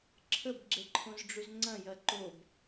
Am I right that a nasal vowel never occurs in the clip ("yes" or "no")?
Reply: no